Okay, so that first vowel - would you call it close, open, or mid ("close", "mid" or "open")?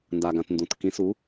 open